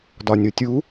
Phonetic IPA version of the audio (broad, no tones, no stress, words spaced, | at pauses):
dɒnʲotʲu